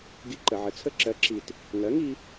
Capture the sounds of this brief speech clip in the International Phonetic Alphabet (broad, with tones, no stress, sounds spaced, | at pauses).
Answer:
ɡ i˧ ǃ ə˩ ʕ ə˩ t͡sʰ ə˧ ǁ ɜ˩˥ ǁ i˩ t | ŋ ɜ˩˥ ŋ i˧